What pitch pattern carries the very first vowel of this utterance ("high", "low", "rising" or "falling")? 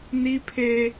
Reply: high